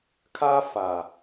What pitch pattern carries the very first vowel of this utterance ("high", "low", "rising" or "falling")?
high